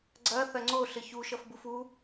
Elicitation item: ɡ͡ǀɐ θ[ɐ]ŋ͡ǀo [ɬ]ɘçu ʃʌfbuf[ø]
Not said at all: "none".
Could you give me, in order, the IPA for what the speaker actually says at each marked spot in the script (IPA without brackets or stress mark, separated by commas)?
ɐ, ɬ, u